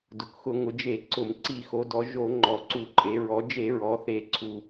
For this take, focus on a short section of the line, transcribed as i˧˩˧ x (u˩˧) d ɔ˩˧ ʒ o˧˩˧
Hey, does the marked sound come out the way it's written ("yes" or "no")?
no